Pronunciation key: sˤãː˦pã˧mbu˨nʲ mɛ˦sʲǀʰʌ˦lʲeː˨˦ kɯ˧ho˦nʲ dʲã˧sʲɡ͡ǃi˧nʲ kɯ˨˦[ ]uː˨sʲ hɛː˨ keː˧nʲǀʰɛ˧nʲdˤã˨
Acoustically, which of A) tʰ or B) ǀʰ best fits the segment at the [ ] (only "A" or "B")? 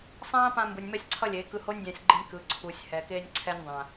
B